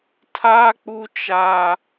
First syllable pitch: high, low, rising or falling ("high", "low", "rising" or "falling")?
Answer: high